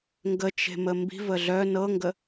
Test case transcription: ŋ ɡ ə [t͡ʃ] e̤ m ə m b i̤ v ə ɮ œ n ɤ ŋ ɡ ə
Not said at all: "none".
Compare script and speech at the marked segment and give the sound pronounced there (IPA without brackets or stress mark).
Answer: t͡ʃ